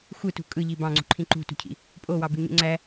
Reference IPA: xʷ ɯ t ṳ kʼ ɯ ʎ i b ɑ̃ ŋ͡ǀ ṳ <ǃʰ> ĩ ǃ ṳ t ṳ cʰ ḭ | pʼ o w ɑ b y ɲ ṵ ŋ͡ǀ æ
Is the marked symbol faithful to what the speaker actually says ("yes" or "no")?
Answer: yes